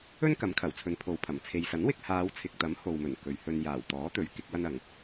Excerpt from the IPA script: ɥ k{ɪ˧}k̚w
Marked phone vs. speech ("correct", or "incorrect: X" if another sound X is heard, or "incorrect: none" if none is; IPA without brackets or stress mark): incorrect: ɪ˥